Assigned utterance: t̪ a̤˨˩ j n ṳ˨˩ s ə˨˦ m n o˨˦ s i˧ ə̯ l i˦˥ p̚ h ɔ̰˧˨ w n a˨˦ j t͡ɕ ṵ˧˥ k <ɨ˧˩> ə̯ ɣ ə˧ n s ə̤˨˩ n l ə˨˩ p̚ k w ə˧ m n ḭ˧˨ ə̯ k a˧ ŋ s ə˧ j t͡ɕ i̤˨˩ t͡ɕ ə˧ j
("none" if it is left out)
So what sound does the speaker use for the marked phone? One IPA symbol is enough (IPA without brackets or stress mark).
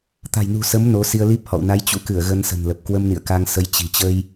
ɨ˧˩